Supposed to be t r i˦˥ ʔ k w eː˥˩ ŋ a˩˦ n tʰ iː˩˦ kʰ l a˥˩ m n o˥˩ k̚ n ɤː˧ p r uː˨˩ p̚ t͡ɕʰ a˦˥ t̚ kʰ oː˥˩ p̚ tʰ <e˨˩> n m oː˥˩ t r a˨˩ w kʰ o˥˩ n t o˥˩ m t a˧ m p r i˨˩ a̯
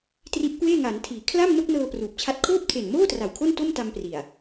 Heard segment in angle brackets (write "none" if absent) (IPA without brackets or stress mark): e˨˩